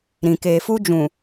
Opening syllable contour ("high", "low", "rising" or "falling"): low